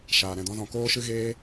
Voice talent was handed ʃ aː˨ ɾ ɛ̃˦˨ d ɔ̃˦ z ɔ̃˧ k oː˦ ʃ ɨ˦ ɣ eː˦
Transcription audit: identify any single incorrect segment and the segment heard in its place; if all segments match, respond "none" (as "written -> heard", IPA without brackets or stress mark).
none